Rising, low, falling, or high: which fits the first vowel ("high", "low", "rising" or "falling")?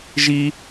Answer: high